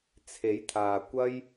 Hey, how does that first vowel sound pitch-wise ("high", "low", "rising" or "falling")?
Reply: rising